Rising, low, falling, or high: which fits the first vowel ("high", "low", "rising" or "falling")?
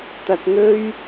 low